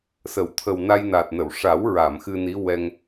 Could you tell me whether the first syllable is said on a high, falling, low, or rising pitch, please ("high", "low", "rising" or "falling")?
low